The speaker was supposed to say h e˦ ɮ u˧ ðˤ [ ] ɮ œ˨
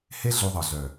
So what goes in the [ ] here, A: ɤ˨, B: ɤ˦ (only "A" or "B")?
A